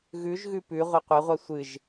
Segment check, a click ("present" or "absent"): absent